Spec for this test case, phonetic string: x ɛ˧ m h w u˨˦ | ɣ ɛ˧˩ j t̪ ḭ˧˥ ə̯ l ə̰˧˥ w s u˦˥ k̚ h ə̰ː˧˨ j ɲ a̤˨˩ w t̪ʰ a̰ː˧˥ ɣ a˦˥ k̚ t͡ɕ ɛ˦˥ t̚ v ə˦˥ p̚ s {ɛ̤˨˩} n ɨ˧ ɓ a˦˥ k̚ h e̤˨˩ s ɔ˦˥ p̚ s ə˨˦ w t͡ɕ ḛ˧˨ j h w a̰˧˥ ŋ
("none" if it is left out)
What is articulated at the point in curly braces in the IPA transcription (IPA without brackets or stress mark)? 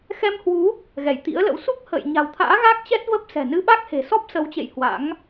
ɛ̤˨˩